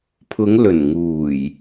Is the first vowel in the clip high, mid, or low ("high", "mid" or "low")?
high